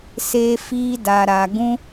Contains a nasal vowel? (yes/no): yes